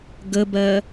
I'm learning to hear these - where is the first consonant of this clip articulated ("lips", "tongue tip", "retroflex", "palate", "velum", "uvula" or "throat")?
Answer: velum